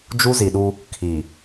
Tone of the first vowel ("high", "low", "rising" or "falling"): high